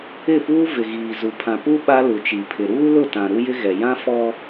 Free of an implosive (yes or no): no